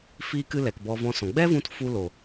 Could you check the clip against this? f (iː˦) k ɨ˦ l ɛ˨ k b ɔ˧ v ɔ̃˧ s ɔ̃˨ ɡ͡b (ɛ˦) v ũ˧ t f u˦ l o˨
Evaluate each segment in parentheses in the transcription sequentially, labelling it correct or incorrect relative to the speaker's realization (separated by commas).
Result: correct, correct